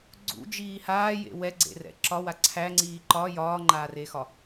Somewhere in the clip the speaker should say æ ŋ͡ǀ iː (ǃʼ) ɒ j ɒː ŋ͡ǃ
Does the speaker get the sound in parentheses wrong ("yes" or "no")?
yes